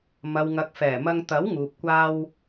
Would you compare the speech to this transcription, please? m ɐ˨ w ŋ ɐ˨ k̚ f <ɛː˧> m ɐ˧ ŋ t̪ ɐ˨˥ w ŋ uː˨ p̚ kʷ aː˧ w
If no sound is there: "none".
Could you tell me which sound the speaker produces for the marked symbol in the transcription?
ɛː˨˩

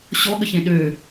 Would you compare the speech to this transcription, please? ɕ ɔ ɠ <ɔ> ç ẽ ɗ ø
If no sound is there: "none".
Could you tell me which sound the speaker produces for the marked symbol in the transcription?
ə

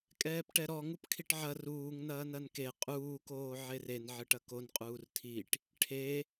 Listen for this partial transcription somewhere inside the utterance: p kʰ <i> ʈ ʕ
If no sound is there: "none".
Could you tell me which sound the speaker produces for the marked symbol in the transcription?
i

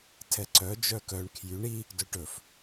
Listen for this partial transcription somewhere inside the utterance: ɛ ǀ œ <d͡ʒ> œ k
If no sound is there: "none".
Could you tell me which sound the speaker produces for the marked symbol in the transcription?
d͡ʒ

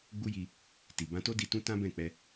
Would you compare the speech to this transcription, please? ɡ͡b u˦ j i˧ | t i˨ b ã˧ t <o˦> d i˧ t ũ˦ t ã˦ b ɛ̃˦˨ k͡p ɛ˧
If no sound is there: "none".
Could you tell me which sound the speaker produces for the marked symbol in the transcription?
o˦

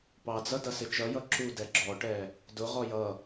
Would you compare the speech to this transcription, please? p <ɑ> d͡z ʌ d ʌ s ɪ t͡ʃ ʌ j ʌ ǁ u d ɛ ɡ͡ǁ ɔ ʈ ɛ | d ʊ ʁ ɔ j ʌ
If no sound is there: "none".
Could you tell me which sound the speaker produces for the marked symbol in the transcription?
ɑ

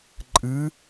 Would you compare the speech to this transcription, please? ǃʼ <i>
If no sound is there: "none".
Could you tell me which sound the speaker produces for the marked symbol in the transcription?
ɨ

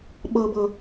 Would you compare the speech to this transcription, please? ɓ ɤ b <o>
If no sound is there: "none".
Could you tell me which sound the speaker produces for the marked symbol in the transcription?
ɤ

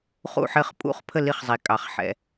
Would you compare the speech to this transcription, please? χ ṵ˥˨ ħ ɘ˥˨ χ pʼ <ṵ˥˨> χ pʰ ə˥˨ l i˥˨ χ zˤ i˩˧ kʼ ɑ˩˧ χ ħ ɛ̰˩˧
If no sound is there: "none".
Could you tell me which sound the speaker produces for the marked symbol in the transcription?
ṵ˥˨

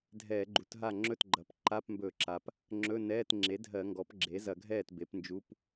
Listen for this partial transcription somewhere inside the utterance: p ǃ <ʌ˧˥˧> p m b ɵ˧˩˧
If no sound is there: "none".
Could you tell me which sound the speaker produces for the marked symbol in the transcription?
a˧˥˧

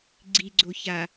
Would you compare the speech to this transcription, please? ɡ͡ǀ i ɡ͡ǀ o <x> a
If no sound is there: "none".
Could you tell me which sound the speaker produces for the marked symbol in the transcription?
ç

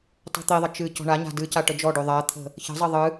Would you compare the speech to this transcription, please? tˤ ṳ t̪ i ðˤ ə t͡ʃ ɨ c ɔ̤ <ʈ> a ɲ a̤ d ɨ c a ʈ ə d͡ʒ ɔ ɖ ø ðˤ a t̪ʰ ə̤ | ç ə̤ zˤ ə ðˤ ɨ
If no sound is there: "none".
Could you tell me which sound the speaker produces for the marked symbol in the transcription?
ɳ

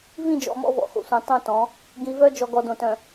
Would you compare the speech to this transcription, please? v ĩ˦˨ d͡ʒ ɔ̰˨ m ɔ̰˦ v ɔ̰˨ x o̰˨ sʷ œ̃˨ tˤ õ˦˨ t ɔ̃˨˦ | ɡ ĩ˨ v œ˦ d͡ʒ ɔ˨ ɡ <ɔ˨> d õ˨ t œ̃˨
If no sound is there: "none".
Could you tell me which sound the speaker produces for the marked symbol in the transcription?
ɔ˨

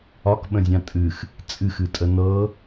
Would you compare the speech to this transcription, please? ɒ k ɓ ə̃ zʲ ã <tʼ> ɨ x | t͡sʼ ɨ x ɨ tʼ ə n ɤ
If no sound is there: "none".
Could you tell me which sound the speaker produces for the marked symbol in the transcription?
tʼ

